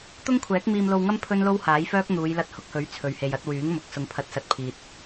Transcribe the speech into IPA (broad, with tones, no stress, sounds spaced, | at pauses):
t̪ ʊ˥ ŋ kʷʰ ɛː˨˥ k̚ m iː˧ m l o˧ w ŋ ɐ˥ m pʰ ɵ˥ n l o˥ w h aː˨˥ j f œː˥ k̚ n̪ uː˨˧ j l ɐ˧ t̚ h ʊ˨˥ k̚ h ɵ˨˥ ɥ t͡sʰ ɵ˨ ɥ h e˨ j ɐ˨˥ t̚ w yː˨˥ ŋ m ʊ˨ k̚ s ʊ˨ ŋ pʰ ɐ˨˥ t̚ s ɐ˨ t̚ pʰ iː˨ t̚